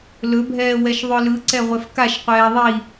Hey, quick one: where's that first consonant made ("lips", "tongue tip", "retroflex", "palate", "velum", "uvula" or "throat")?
tongue tip